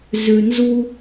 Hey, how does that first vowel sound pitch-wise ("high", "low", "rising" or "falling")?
low